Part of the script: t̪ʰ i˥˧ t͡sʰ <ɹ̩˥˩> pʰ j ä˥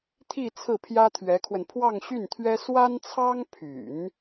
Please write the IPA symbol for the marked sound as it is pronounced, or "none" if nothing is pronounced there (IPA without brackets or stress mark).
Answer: ɹ̩˥˩